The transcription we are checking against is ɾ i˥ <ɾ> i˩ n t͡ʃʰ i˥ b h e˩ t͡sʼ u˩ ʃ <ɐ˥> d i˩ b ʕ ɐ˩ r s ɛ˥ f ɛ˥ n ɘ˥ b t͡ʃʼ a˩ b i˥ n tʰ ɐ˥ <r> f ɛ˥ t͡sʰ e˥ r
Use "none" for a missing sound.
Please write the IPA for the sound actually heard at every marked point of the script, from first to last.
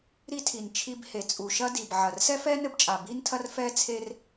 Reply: tʰ, ɐ˥, r

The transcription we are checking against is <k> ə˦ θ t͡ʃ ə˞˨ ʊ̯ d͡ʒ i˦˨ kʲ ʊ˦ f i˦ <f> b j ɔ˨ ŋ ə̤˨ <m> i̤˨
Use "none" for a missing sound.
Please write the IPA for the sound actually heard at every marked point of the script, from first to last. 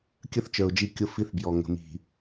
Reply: kʲ, θ, m

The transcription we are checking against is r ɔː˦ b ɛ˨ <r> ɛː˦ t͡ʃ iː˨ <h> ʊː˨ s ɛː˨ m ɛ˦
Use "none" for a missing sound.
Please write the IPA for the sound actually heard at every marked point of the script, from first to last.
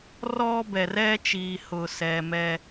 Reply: r, h

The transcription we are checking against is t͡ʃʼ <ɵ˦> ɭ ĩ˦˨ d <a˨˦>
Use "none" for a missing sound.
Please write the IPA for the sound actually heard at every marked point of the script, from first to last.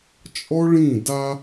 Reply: ɔ˦, a˦

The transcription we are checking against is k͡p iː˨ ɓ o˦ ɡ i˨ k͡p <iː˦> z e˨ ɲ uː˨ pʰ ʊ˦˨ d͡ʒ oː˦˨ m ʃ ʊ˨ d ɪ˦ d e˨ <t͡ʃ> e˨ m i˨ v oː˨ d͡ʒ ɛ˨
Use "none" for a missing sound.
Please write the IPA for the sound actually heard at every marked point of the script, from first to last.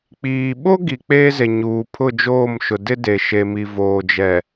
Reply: eː˦, ʃ

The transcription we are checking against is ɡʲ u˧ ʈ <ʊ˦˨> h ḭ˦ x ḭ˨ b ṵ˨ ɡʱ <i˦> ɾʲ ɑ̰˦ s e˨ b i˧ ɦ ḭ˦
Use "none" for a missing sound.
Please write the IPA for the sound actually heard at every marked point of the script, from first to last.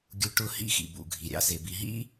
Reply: ʊ˦˨, i˨

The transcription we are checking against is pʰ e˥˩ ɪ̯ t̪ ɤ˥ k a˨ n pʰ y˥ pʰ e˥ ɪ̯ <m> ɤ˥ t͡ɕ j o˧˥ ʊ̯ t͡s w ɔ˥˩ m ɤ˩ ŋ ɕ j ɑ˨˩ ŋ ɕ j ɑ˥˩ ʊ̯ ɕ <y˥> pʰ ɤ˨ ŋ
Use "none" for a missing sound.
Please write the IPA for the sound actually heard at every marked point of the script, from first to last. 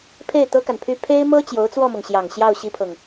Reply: m, i˥

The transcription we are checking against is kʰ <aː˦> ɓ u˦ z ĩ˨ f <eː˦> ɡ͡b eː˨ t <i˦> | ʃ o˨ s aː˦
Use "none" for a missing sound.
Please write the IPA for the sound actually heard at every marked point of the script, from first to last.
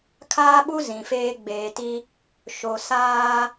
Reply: aː˦, eː˦, i˦

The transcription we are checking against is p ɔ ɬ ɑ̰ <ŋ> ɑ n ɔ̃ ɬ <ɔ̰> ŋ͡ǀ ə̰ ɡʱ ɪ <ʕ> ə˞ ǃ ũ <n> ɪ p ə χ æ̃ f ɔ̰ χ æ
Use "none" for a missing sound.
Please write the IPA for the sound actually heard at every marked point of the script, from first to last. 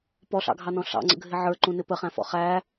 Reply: ɡʱ, ɑ̰, ʕ, n

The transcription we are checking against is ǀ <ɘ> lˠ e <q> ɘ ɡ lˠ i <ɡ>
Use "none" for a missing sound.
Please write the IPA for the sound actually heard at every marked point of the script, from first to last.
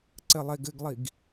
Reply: ɘ, ɡ, ɡ

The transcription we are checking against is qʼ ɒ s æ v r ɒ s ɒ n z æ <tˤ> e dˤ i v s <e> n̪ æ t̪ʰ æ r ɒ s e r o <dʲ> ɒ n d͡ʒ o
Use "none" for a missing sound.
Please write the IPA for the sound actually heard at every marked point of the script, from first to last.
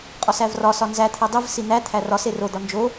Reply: t̪ʰ, i, d̪

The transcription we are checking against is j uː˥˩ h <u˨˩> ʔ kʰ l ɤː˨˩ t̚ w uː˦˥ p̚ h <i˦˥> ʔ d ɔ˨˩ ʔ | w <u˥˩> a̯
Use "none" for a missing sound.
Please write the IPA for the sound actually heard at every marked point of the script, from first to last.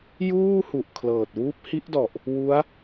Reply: u˨˩, i˦˥, u˦˥

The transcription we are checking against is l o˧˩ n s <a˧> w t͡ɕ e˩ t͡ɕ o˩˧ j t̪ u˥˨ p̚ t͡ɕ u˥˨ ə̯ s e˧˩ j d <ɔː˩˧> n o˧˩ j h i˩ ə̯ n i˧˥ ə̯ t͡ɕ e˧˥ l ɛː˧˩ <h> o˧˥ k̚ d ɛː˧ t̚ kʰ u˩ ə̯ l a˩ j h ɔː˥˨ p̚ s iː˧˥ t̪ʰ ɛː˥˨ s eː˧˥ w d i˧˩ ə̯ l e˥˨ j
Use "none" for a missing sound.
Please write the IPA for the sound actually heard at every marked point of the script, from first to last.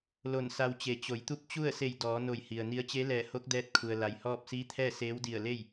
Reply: a˧, ɔː˩˧, h

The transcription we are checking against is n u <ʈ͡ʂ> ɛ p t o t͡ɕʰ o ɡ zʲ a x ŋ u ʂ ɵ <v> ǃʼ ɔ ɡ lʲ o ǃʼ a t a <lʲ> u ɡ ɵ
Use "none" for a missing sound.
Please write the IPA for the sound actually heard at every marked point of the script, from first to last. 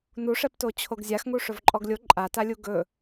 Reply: ʂ, v, lʲ

